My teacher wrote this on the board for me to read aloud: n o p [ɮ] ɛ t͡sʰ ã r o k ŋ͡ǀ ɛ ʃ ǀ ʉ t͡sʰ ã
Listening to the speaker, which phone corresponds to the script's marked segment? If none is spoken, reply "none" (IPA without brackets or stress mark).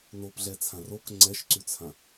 ɮ